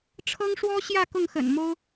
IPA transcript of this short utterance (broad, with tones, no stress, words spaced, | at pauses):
ʈ͡ʂʰɤ˦ŋʂwɔ˦ɕjä˥˨ kʊ˥˨ŋxə̰˨˩nmo˦ʊ̯